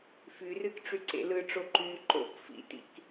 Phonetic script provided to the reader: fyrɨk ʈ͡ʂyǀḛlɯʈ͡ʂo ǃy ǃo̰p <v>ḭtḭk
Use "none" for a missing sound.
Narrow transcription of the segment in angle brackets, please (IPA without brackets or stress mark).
f